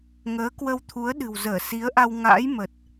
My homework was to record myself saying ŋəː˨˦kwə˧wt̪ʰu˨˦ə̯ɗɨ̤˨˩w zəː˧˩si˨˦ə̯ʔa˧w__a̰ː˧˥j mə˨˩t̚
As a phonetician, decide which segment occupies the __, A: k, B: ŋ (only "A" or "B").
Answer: B